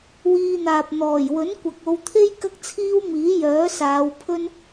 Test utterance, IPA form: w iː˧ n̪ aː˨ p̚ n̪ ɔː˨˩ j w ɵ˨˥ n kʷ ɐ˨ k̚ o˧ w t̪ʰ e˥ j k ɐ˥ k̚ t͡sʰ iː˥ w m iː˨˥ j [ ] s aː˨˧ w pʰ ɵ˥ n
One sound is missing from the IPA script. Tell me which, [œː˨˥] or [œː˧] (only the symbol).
œː˨˥